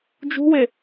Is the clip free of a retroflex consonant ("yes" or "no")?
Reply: yes